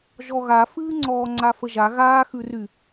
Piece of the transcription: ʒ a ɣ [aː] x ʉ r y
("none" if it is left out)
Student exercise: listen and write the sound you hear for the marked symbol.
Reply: aː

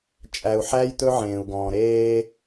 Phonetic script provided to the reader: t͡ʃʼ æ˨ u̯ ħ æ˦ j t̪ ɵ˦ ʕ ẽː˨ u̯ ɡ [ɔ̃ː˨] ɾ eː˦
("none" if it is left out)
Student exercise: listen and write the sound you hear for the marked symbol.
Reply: ɔ̃ː˨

